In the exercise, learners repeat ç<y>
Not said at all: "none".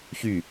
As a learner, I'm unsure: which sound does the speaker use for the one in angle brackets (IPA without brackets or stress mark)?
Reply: y